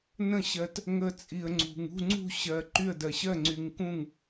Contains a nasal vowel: yes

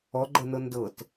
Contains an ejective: no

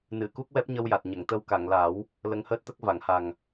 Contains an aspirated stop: no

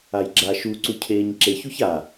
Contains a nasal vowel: no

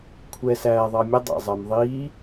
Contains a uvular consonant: no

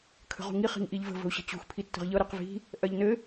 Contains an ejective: no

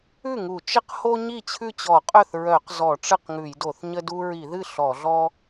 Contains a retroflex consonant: yes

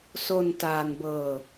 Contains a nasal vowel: no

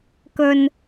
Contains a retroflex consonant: no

